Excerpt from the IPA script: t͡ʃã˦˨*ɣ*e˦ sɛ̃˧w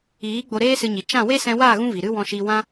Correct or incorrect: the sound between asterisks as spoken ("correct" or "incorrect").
incorrect